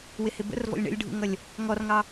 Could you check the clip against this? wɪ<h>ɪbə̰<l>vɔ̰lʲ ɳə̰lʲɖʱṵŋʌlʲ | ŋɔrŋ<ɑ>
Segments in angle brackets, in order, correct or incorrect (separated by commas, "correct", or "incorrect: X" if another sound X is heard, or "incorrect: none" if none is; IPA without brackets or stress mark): correct, incorrect: r, correct